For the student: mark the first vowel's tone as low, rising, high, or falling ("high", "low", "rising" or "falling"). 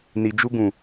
low